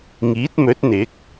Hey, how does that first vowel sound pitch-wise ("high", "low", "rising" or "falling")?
rising